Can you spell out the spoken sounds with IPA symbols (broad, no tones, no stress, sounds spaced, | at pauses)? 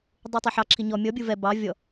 dˤ u tˤ e ħ ɑ ǁʰ i ɲ ɔ mʲ ɔ bʲ u v ɛ b ɑ vʲ ɔ